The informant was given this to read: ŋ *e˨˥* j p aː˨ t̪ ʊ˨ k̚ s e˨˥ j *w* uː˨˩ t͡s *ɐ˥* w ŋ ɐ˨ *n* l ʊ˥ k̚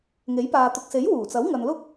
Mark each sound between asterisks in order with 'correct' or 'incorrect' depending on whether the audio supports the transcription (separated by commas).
correct, correct, incorrect, correct